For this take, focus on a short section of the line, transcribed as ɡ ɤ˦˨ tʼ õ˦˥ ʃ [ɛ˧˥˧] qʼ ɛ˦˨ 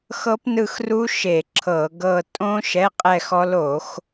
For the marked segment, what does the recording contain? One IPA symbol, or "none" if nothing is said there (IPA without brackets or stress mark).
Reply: ɛ˧˥˧